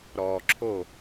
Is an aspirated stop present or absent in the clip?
present